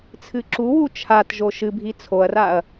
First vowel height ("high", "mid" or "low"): high